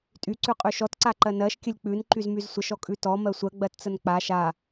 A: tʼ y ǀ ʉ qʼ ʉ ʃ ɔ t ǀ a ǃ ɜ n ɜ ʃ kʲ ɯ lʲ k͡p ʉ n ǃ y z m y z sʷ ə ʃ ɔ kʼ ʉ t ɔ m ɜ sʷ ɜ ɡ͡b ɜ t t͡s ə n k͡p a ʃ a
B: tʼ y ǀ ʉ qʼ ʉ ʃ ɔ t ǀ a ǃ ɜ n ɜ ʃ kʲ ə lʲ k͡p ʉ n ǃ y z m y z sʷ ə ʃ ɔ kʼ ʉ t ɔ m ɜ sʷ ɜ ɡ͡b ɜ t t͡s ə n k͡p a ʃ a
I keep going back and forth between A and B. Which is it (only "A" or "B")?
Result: B